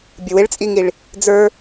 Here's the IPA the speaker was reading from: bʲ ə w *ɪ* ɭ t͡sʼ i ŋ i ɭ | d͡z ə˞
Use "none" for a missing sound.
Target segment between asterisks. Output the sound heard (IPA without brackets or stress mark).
ɪ